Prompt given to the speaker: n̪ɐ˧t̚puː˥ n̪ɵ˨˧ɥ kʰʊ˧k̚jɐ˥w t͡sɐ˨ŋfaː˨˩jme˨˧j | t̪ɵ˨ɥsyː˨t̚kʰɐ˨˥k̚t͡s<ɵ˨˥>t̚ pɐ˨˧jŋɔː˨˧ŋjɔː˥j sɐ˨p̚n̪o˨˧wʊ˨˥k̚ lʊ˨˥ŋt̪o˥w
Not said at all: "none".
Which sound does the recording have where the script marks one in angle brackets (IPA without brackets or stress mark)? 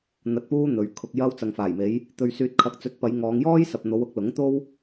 ɵ˨˥